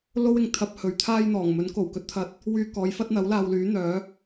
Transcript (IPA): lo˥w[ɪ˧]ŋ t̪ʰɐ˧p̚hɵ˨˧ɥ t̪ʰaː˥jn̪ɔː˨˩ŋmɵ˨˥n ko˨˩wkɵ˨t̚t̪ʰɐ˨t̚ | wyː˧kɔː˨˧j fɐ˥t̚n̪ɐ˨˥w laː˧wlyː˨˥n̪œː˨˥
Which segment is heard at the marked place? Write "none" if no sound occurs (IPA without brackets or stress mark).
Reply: ɪ˧